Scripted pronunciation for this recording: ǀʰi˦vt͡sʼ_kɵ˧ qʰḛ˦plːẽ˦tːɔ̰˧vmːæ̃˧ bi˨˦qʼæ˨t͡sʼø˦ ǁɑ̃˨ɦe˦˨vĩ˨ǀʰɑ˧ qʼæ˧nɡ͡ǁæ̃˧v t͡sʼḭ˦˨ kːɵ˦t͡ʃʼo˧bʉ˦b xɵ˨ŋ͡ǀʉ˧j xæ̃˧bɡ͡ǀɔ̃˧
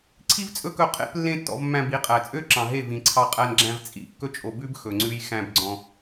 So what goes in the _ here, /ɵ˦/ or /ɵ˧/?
ɵ˦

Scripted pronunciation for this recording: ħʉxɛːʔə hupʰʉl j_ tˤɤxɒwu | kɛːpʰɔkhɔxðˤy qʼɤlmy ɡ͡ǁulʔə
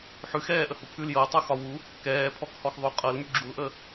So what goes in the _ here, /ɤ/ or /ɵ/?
ɤ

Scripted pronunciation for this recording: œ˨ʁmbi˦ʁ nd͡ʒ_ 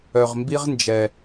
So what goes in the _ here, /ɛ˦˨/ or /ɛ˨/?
ɛ˨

